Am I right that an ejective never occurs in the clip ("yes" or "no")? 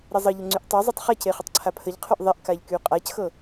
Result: no